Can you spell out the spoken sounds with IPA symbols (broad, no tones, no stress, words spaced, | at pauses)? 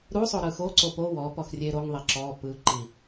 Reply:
ɾusˤo ɾɯxoǀo po wɔ pɔxrʲeɾoŋðˤe ǁɔ pɯǃi